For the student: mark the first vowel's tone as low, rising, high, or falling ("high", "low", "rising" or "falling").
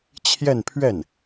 falling